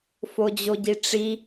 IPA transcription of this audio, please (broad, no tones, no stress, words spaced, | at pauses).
fod͡ʑoɟiʈ͡ʂi